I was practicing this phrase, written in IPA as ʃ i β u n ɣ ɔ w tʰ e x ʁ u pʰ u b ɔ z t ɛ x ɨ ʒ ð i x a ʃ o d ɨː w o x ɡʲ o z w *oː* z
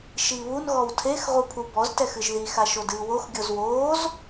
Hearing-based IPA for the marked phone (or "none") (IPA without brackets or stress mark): oː